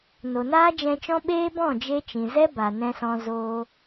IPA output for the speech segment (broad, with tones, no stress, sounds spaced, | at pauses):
n o˨ n aː˦ d͡ʒ ɛ̃˧ t͡ʃ ɔ̃˦ ɓ eː˦ b ɔ̃˦˨ d͡ʒ e˧ t͡ʃ ĩ˨ z ɛ˦ b a˨ n ɛ̃˧ s ɔ̃˧ z oː˦